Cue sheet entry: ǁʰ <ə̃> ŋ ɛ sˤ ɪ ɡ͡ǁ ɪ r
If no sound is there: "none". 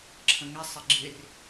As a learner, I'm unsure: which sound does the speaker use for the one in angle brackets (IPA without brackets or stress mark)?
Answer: ə̃